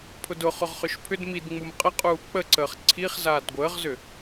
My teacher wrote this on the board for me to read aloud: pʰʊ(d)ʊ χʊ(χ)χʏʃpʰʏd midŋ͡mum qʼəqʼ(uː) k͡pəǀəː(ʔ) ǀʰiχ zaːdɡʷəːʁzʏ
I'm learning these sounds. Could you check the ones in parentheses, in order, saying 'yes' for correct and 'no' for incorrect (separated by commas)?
yes, no, yes, no